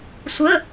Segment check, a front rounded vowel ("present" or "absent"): absent